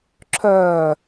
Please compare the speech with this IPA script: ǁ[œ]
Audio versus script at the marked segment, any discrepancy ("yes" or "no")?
no